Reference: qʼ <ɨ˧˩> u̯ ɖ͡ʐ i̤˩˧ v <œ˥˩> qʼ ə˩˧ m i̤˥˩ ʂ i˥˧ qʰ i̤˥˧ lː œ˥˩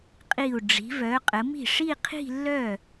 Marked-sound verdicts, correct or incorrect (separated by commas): incorrect, incorrect